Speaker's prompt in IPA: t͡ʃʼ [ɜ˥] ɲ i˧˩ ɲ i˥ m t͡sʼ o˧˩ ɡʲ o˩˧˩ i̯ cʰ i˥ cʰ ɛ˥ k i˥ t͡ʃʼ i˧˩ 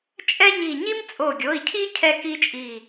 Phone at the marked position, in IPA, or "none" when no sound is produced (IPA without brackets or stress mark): ɛ˥